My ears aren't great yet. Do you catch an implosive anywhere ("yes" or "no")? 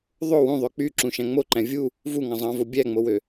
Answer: no